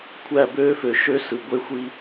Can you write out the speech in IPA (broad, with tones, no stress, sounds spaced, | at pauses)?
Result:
kʷʰ æ˦˨ b øː˦ f ø˨ ʃ ø˦ s ɯ˨ ɡʷ e˦ xʷ i˦